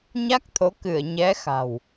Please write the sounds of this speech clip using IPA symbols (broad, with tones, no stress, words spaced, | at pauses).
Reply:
ɲa˦˥k̚t̪ʰo˨˦ kɨ˧˩ə̯ɲɛ˨˦xa̤˨˩w